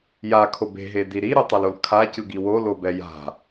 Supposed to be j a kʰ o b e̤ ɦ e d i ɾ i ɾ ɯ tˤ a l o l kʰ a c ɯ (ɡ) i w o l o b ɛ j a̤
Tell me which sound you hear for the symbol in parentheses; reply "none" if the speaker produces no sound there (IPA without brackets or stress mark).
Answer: ɡ